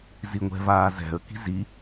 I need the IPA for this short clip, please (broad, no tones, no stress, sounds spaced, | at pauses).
z i ŋʷ ɛ̤ v aː z ɛ̤ ə̯ k i̤ z i